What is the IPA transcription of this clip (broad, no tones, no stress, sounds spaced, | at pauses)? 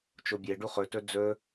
t͡ʃ o bʲ e ɖ u χ ɵ t ɵ d͡z ɵ